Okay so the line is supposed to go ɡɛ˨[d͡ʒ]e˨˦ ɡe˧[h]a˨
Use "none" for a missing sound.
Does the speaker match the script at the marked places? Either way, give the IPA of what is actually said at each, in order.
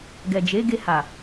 d͡ʒ, h

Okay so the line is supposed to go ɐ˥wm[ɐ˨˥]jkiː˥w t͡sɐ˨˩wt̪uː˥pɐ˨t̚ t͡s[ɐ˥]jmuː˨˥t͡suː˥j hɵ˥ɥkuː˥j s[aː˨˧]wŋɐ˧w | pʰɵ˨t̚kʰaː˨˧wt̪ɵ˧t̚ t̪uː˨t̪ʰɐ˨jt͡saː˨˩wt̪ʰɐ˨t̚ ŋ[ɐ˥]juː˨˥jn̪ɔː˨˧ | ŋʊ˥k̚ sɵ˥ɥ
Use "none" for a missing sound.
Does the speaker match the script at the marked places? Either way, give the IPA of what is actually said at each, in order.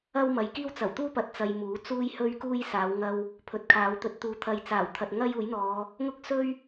ɐ˨˧, ɐ˧, aː˨˧, ɐ˥

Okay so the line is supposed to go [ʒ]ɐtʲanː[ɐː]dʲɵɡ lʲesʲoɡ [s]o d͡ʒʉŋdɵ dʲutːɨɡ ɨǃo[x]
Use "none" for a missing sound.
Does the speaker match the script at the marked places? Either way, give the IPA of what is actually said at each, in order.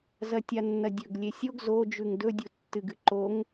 z, ɐ, z, ŋ

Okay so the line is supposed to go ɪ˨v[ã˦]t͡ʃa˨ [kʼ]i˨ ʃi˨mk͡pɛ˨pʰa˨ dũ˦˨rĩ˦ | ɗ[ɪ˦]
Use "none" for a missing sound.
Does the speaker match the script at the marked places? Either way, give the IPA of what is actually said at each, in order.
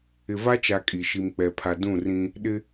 a˦, kʼ, ɪ˦

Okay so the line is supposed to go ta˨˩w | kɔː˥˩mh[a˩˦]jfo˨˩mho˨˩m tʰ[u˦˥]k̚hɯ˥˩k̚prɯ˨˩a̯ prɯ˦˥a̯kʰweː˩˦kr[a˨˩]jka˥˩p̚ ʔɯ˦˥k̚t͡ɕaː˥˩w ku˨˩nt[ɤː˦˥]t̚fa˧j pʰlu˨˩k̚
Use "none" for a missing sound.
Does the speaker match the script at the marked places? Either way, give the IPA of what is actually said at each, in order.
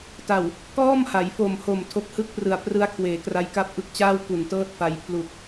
a˩˦, o˦˥, a˧, ɤː˥˩

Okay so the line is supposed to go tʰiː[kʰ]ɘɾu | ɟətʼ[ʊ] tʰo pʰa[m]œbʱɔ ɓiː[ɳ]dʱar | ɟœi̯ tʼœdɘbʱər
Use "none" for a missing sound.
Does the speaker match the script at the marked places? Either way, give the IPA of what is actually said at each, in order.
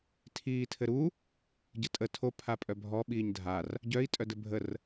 tʰ, ə, pʼ, ɲ

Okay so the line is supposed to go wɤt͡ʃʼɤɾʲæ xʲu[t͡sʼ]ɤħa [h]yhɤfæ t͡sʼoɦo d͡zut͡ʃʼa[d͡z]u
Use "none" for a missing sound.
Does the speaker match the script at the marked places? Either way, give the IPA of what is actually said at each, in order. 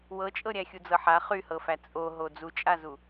d͡z, χ, z

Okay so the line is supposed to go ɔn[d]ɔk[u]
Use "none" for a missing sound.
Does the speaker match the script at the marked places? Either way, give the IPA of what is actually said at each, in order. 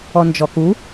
d͡ʒ, u

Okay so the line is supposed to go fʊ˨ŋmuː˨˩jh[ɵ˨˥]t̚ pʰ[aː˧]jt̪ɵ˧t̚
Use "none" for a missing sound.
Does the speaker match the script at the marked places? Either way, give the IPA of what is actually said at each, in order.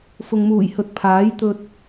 ɵ˨˥, aː˨˥

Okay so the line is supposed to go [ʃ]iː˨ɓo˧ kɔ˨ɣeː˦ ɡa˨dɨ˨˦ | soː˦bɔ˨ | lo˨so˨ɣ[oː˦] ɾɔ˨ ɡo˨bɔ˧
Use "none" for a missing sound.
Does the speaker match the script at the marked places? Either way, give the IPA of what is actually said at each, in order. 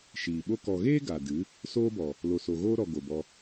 ʃ, oː˦

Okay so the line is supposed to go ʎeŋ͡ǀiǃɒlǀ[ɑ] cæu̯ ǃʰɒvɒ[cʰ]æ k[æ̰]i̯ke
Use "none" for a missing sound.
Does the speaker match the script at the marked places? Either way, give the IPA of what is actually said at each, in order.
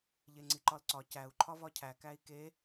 ɒ, cʰ, æ

